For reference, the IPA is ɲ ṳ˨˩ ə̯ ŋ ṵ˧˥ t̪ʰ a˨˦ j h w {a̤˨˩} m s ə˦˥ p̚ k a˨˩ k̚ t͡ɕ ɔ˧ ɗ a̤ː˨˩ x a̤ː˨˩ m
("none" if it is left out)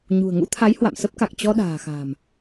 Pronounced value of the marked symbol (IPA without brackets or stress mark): a̰˧˨